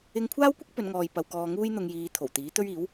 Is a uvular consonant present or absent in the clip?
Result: absent